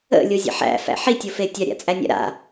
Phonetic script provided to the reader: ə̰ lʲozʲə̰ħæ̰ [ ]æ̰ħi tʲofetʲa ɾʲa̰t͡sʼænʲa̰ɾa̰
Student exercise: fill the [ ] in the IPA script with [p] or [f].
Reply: f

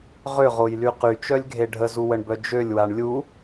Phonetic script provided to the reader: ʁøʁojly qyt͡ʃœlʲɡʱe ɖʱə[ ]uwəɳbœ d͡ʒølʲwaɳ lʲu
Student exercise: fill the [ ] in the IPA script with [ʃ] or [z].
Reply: z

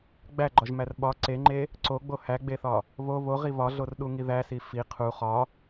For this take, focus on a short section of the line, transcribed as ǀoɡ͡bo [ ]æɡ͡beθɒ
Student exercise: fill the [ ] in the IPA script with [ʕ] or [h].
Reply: h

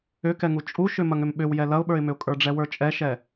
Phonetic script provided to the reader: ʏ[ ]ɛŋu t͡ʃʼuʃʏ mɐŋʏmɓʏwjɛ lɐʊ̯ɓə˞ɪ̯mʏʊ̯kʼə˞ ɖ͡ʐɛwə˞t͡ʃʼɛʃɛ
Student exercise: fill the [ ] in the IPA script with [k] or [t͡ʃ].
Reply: k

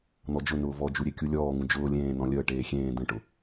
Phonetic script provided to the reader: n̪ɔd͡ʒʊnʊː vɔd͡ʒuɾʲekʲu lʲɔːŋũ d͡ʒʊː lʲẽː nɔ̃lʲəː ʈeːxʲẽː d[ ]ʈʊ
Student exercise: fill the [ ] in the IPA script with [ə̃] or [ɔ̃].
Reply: ə̃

